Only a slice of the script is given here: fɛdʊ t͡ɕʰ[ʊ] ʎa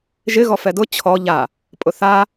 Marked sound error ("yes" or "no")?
yes